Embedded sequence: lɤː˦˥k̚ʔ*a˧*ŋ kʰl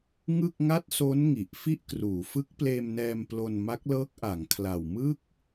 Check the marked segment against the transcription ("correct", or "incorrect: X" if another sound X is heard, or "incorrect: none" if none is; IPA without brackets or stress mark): incorrect: a˩˦